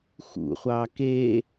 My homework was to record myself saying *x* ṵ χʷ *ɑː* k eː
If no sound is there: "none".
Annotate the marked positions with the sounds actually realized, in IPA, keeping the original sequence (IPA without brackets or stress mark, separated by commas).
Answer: x, ɑː